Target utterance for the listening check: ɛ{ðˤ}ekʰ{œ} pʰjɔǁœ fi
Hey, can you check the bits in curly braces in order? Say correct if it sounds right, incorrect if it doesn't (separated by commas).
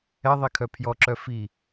correct, correct